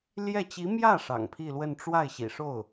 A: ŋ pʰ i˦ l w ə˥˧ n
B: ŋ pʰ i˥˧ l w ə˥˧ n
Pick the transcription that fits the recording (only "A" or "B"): B